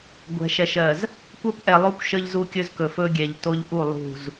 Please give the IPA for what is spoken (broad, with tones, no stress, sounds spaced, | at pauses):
ɡʷ ɛ̤˨ ʃ ɛ˨ ʃ ɜ˨ z | kʷ ə˦ p ʔ ɛ˨ lˠ o˦ kʷ ʃ ə˦ ʎ z u˦ kʲ ɵ˦ z k ɵ˨ f ɵ˦ ɡʲ ɛ˨ ʎ t o˦ ʎ ʔ u˦˨ lˠ ṳ˦˨ z